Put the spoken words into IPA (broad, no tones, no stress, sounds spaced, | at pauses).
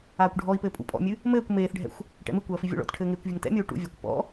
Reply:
aː kʷ ɖʱ ɔ i̯ p ɘː pʼ ṵ pʼ ɔ̰ mʲ ɨ | m ɘː kʷ m eː θ ɖʱ ɛ̰ xʷ | ʈ ɛ̰ m ɨ kʷ ɐː f i vʲ o̰ ɭ ɔ̰ t ʈʰ ɘː ŋ eː kʷ vʲ ɘ ŋ t ɛ̰ mʲ o u̯ ʈ ṵ vʲ ɐː kʷ p ɔ̰